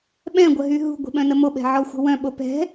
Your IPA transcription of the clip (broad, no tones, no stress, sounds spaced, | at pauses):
ɓ ɛ̃ ɡʷ ə ɦ y ɦ ṳ ɡʷ i̤ ɓ œ̃ n ə m o ɓ ɛ̤ ʕ ɔ xʷ ə̤ w œ̃ ɓ o p ɛ̤